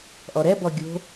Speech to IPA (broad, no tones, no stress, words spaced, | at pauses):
ʔɔɾɛbɔ ɡʲo̤